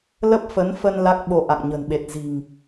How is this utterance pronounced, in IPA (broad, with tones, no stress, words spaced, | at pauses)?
lə˦˥p̚fə˨˦nfə˧n la˦˥k̚ɓo˧ʔa̰˧˨ŋ ɲə̤˨˩nɓe˨˩t̚ zi̤˨˩ŋ